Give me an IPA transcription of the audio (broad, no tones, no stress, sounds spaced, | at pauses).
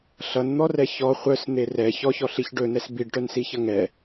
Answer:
ɬ ʌ n n̪ ɔ r ɛ ç ɔ χʷ œ s n̪ e r ɛ ç ɔ ç ɔ ɬ i ç ɖ ɵ n ɛ s b i ɖ ʈ œ n s i ç ʌ ŋ ɛ